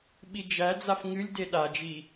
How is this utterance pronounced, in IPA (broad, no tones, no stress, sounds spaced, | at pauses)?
ɓ i d͡ʒ æ d͡z a f ŋ ɨ lʲ d e ɗ a d͡ʒ i